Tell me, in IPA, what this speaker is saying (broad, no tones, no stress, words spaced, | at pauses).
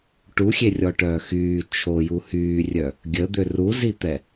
ʈuxʲerʲɔʈœː xyː t͡ʃʰoju hyːrʲœ | ɡʲəd̪ø ruzit̪ɛ